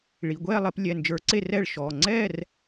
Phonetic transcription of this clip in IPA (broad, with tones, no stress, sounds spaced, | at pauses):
ɭ i˩˧˩ ɡʷ ɛː˥˨ lˠ e˨˦ p lʲ ɛ˩˧˩ n d͡ʒ ə˞˨˦ ǀ e˥˨ r ɛː˥˨ ɭ ʃ ɔː˩˧˩ ŋ͡ǀ ɛː˥˨ r